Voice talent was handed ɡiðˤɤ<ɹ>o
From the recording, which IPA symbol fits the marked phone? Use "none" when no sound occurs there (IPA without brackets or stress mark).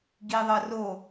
r